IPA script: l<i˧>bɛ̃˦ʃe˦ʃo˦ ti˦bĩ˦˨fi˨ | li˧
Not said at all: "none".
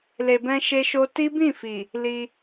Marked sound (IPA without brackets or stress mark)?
e˧